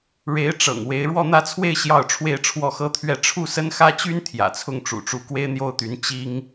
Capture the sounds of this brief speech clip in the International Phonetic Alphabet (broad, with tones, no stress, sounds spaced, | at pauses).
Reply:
ɻ e˧˥ ɪ̯ ʈ͡ʂ ɤ̰˨˩ ŋ w e˧˥ ɪ̯ ɻ w ɔ˥˧ n̪ ä˥˧ t͡sʰ w e˥˧ ɪ̯ ɕ j ɑ˥˧ ʊ̯ ʈ͡ʂʰ w e˥˧ ɪ̯ ʈ͡ʂʰ w ɔ˥˩ x ɤ˥ t̪ʰ ɥ ɛ˥˧ ʈ͡ʂʰ u˥˩ s ə˥ n x ä˥ t͡ɕ y˥ n t̪ʰ j ä̰˨˩ t͡sʰ ʊ˥˩ ŋ ʈ͡ʂ ṵ˨˩ ʈ͡ʂ u˧˥ k w e˥ ɪ̯ n̪ j o˥ ʊ̯ t̪ y˧˥ n t͡ɕ i˥ ŋ